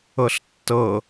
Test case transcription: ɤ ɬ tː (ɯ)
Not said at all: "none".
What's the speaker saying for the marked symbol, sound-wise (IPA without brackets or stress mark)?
ɤ